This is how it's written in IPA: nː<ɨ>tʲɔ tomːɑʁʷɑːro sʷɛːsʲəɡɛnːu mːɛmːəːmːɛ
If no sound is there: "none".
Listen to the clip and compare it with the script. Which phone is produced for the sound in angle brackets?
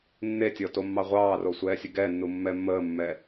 e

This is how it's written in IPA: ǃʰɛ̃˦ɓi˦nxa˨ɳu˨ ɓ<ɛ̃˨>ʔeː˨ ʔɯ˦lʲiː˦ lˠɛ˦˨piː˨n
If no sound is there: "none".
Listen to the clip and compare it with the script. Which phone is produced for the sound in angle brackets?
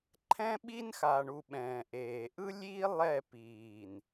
ɛ̃ː˨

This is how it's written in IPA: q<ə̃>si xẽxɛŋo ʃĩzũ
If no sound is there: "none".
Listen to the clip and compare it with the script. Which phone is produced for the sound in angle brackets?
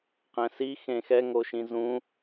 ɛ̃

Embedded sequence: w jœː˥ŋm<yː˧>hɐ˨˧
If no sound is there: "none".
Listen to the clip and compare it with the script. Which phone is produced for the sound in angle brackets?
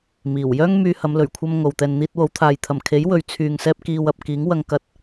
yː˧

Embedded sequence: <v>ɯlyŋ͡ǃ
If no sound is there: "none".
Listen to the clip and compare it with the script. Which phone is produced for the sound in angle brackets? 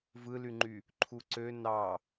v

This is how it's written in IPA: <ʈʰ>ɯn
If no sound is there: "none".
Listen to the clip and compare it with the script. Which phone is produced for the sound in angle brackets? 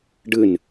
ɖ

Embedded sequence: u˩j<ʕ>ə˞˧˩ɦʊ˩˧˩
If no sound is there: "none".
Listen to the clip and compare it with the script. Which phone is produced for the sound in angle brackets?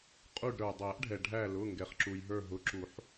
ɦ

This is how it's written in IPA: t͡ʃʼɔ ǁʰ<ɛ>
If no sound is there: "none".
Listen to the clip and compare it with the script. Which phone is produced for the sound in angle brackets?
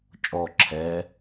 ɛ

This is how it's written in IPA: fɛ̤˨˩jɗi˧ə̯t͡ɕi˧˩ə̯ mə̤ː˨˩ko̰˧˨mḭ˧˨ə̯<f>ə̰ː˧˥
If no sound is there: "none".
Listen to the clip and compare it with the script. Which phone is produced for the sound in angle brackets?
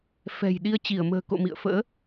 f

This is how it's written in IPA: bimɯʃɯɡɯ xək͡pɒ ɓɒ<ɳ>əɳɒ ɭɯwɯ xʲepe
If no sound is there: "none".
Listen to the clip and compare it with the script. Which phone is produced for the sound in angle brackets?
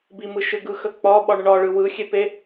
ɳ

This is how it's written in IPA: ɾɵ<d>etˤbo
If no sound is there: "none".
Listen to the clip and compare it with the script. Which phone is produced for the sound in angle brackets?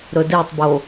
d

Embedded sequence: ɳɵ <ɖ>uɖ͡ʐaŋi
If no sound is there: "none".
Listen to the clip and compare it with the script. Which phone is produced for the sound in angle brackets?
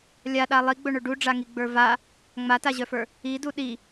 ɖ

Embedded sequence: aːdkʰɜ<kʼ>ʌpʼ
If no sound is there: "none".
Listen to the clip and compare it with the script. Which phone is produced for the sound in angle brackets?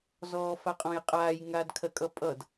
kʼ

